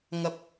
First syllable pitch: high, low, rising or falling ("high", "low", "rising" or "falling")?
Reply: high